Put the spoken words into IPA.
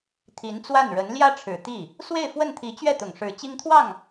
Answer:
t̪ʰ i˧˥ n t͡s w a˥˩ n ɻ ə˧˥ n l j ä˥ ʈ͡ʂʰ ɻ̩˨˩ t̪ i˥˩ | s w e˥˧ ɪ̯ f w ə˥˩ n t̪ʰ i˧˥ t͡ɕ ɥ ɛ˥˩ t̪ ʊ˨˩ ŋ ʂ ɻ̩˧˥ t͡ɕ i˥ ŋ t̪ʰ w ɑ˥˩ ŋ

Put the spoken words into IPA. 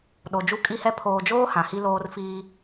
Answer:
ɗ o˨ d͡ʒ u˦ kʼ i˦ h ɛ˦ pʰ oː˨ d͡ʒ oː˦ h ã˨ h i˦ l oː˦ r f iː˦

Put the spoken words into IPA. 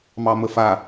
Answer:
m ɑ m ə f a

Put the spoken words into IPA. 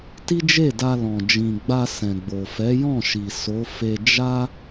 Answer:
t i˦ d͡ʒ e˦˨ d a˧ l ɔ̃˨ d͡ʒ ĩ˨ ɡ͡b a˧ s ɛ̃˨ ɡ͡b o˨ f ɛ˨˦ j ɔ̃˦˨ ʃ i˨ s o˨˦ f e˧ d͡ʒ a˦

